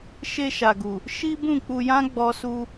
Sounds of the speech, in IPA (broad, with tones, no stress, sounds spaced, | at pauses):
ʃ e˧ ʃ a˨ ɡ u˨ | ʃ i˦ b ũ˦˨ k͡p u˧ j ã˦ ɡ͡b ɔ˦ s u˦